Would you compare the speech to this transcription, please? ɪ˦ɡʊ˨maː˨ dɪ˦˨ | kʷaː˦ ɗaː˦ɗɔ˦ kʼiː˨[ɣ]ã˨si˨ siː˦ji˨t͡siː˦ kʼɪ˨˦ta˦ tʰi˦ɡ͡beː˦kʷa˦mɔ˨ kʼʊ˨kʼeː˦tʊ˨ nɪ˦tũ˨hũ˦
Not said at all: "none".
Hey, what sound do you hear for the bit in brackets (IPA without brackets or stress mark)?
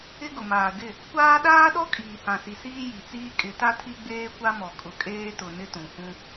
h